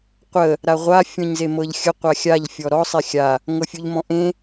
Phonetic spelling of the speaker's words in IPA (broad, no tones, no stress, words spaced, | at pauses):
qʷə | ɾaʁʷa fʲɔ̃ɲzemɤʎxʲə qʷaxʲaʎ fʲɔɾɔ sˤexʲa | ŋɤfʲuʎmɔ̃ʔẽ